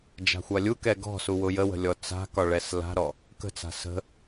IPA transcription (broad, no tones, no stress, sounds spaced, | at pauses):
d͡ʒ a̤ xʷ a lʲ u k ɛ ɡ ɔ̤ s u w ʊ j ə w ə̤ lʲ ɔ t͡s a̤ k ɒ ɭ ɛ s l a̤ ɾ ɔ | k ə̤ t͡s a̤ s ə̤